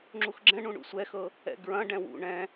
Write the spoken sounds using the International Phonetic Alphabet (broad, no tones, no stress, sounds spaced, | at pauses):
ŋ͡ǁ u x ɡ͡ǁ ɛ̃ ɳ ũ ɳ ṵ sʷ ɛ x ɤ | ɛ̰ ɡ ɹ ɐ̃ ɖ ɛ̃ w ṵ ɳ ɛ̃